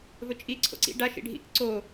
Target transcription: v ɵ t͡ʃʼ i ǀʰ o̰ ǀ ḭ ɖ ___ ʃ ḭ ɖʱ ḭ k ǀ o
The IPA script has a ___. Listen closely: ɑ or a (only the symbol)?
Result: a